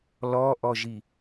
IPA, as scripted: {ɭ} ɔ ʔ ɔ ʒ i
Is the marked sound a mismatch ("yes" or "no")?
yes